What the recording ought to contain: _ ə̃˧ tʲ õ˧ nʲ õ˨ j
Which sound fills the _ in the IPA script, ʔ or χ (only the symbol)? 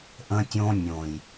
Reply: ʔ